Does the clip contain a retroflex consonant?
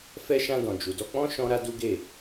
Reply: no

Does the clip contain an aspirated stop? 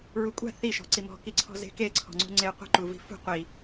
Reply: yes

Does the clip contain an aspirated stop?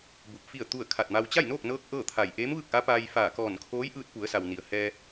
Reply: yes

